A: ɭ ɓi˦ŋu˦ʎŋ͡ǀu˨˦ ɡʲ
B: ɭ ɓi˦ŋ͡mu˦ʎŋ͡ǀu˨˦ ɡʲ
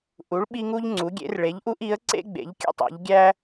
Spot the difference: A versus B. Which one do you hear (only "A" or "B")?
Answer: A